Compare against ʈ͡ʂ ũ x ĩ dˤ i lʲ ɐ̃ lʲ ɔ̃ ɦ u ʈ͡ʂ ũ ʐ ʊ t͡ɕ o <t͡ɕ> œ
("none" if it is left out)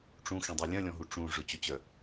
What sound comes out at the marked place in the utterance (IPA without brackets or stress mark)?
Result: t͡ɕ